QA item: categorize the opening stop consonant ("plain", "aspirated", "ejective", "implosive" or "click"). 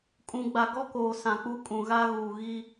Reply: ejective